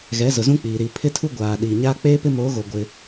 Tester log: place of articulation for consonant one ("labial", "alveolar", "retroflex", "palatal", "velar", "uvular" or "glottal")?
velar